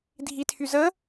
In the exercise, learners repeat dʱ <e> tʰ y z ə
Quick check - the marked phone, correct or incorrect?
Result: incorrect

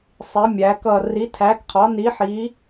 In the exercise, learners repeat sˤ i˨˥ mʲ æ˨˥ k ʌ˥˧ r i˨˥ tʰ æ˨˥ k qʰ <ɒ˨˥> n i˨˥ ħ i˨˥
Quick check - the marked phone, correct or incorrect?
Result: correct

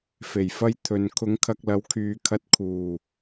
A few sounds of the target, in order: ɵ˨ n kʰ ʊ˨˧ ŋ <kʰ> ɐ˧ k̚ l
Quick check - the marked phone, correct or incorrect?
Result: correct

